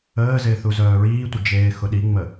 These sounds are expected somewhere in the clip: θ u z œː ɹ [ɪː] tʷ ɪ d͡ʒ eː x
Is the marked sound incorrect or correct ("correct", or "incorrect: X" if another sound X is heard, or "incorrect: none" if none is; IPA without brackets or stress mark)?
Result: incorrect: iː